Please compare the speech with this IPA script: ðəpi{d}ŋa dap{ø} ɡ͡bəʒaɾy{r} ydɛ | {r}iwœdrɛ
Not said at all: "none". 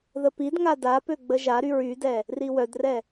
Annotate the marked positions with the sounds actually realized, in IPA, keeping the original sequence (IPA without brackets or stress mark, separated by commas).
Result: d, ø, ɹ, r